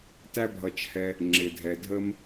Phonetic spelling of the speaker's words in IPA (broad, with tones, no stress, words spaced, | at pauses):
tæ˦bʱʌ˨t͡ʃhɛ˨ | ŋ͡ǁɪ˨dʱɛ˨dʱə˥m